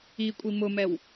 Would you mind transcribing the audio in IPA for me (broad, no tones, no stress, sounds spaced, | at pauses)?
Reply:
i kʷʼ i m ʊ m ɛ w